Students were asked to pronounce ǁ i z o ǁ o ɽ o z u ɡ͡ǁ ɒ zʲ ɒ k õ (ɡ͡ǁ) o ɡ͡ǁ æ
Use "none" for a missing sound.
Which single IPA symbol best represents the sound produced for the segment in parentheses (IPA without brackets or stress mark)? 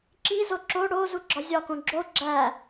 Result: ɡ͡ǁ